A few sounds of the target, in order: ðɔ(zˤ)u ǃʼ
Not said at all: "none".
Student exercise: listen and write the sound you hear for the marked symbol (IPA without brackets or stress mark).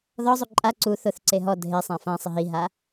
zˤ